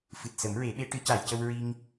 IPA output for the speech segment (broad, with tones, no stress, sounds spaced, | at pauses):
f ɨ˨˩ t̚ s ə˨˩˦ m ɹ e˨˩˦ ɓ e˧˥ ʈ ɨ˨˩˦ c a˨˩˨ j c ə˧ w ɹ i˧ ŋ